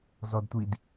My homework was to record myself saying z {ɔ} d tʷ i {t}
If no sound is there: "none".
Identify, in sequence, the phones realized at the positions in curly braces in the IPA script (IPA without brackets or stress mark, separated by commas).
ɔ, d